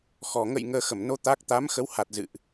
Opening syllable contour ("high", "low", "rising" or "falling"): low